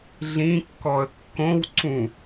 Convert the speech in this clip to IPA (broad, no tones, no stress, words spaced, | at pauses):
ɮĩkːɔə̯ kːõwǀũ